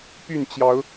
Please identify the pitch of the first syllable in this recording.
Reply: falling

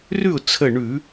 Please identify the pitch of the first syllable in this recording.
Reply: falling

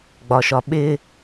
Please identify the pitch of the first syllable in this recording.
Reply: low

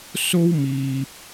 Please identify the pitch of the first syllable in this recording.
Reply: high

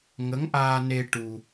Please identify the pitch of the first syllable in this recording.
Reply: rising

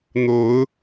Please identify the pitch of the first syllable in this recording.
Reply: rising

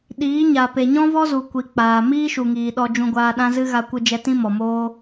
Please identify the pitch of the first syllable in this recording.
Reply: rising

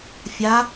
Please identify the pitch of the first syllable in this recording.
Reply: rising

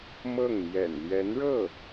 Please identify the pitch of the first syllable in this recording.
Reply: falling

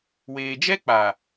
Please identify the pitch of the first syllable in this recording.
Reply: low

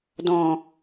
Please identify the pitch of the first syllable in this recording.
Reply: low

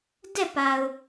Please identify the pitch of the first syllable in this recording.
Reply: falling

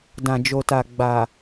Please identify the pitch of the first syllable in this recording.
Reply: low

